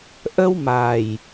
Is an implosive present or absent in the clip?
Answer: absent